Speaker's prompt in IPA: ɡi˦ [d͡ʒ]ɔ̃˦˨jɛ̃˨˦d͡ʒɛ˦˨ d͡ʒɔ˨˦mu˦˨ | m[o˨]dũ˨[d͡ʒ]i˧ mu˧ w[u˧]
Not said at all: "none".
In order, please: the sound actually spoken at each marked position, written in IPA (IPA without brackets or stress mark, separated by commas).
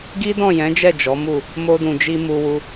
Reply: d, o˧, d͡ʒ, u˧